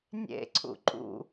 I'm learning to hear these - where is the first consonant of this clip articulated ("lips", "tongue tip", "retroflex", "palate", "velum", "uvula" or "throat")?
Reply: tongue tip